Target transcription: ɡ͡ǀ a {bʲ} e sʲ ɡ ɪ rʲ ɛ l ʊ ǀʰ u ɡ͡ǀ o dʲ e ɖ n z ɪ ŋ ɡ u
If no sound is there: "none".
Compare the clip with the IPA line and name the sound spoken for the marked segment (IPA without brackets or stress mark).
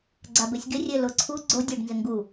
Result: b